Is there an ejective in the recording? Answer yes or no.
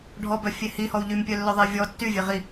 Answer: no